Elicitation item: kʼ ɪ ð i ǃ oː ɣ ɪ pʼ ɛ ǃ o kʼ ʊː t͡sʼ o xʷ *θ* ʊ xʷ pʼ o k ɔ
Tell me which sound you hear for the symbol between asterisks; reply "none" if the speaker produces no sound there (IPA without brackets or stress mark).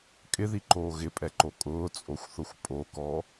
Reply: θ